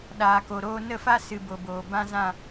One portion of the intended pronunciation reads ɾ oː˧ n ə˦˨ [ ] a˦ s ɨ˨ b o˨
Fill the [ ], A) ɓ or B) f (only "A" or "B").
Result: B